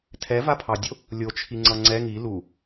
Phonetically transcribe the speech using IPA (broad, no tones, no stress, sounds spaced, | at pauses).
tʰ ɛ v a pʰ ɑ dʲ o | lʲ o t͡ʃʰ i ŋ͡ǀ ʌ ŋ͡ǀ ɛ ŋ i l u